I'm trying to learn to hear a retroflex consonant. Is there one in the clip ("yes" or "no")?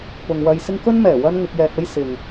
no